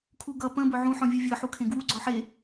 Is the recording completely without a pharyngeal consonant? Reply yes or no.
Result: no